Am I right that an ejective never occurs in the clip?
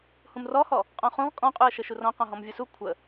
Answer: no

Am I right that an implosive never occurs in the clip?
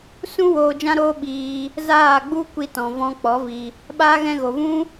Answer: no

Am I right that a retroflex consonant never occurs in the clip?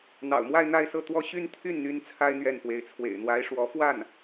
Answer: no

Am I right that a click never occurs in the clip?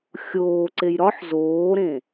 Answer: no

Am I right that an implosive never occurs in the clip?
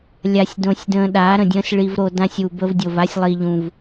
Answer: no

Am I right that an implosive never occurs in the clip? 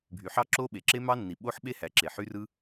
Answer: no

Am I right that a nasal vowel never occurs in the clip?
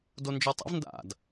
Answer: yes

